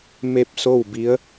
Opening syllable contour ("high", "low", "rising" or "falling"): falling